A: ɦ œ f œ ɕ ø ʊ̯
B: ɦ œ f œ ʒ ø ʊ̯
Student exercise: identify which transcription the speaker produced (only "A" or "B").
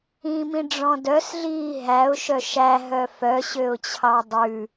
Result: A